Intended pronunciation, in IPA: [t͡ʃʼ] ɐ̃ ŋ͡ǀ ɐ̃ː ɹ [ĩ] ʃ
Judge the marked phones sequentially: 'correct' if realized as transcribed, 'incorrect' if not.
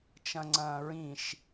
incorrect, correct

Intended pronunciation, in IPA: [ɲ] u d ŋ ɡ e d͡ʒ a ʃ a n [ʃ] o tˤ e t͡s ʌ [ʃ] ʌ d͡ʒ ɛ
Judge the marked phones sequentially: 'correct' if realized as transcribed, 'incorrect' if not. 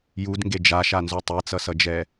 incorrect, incorrect, incorrect

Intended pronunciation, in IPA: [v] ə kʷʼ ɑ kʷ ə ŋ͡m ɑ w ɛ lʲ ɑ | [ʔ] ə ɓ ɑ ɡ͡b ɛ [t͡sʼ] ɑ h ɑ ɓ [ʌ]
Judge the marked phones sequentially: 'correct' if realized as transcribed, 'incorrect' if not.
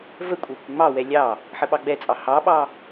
correct, incorrect, correct, incorrect

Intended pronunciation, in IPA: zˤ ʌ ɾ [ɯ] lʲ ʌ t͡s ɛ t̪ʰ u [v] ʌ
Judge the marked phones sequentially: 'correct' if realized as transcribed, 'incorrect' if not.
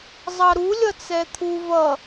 incorrect, correct

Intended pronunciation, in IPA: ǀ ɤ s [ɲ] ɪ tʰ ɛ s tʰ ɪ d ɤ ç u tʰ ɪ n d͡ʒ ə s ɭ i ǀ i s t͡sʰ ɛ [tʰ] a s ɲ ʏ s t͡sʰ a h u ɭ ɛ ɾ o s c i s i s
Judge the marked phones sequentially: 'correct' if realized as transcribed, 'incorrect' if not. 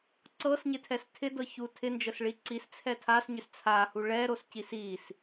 correct, correct

